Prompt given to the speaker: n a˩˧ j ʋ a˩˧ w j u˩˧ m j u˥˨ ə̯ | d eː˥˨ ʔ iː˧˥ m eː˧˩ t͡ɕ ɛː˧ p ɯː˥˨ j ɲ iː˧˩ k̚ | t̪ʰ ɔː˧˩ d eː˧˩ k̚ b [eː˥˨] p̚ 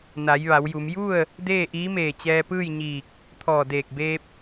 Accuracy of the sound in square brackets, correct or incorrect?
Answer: incorrect